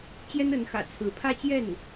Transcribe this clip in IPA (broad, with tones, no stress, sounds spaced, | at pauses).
t͡ɕ j ɛ˥ n ə˧˥ n x ä̰˨˩ t͡sʰ ɹ̩˧˥ pʰ ä˥ t͡ɕ j ɛ˥˩ n